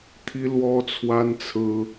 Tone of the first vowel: high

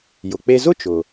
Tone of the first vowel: low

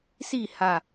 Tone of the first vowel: falling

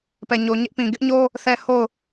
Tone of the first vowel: low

